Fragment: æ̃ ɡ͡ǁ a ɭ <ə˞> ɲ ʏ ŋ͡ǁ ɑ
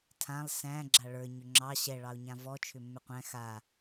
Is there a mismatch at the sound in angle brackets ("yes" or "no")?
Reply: no